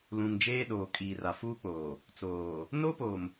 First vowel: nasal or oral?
nasal